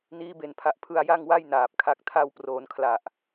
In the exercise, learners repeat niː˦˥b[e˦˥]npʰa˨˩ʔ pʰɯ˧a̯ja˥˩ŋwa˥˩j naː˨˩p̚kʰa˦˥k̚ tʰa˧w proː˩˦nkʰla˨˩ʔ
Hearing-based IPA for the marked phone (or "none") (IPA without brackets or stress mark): e˨˩